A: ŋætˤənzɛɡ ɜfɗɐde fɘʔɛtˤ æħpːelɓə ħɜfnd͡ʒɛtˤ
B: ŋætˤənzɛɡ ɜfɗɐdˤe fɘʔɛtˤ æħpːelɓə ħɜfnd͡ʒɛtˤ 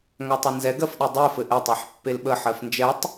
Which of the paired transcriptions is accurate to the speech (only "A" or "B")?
B